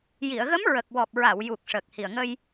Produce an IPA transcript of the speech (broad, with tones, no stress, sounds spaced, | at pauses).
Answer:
j i˨˩˨ ə̯ ɣ ə˧˥ m ɹ ə˨˩ k̚ w ɔ˨˩ p̚ ɹ a˨˩˨ w j u˨˩ k̚ ʂ əː˨˩ k̚ h i˨˩ ə̯ ŋ ə˧ j